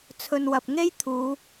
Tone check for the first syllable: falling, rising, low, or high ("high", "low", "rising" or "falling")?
low